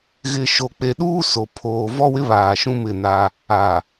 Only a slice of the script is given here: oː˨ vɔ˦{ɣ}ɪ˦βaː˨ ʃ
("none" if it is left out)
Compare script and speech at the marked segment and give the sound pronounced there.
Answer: w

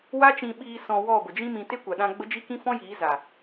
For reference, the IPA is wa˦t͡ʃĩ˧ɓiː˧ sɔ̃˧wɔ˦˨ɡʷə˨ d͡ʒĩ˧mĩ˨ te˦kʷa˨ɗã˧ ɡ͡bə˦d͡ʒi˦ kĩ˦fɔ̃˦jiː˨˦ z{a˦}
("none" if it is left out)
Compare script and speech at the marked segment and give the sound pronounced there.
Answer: a˨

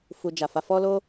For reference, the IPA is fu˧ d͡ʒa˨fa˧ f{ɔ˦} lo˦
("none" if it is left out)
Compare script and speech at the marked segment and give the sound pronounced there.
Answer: ɔ˦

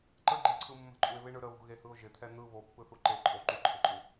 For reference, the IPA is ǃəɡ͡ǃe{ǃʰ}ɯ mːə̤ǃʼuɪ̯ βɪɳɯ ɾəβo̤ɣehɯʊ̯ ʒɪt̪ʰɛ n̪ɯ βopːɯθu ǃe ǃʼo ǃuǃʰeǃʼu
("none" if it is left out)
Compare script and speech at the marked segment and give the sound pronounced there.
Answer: ǀʰ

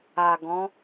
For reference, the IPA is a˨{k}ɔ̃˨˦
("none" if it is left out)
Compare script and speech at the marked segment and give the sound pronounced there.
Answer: ɡ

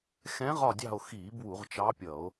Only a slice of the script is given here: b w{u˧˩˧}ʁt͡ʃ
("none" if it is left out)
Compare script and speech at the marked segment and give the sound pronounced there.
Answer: u˧˩˧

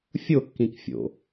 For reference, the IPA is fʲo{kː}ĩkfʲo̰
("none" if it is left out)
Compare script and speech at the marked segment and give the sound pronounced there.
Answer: kː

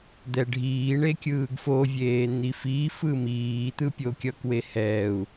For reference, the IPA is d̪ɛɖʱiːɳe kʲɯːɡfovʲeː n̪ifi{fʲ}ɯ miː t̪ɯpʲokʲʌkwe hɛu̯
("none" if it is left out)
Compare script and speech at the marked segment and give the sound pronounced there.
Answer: f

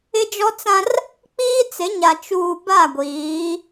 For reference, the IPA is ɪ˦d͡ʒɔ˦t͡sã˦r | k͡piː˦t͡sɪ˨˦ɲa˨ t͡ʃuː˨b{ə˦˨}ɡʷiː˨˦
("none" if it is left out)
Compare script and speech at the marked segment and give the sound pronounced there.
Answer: a˦˨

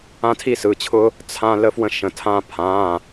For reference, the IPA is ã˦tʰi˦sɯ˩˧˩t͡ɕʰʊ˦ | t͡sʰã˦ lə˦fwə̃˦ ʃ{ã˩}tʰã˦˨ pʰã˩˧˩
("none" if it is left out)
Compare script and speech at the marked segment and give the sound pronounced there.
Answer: ə̃˩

